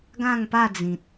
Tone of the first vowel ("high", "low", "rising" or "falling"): falling